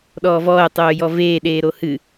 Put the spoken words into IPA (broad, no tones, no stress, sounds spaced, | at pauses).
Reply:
ɗ ɔː v ɔː ə̯ tˤ oː j ɔ v eː ɗ eː ɾ o h ɨ